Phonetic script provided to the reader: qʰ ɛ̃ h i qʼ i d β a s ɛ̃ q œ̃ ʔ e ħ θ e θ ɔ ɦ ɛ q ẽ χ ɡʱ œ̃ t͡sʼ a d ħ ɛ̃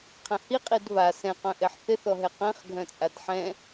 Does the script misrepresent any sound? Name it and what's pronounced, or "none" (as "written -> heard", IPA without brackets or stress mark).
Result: none